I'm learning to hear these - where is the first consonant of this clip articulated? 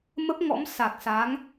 lips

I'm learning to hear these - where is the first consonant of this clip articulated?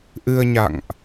throat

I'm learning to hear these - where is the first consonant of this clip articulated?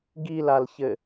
velum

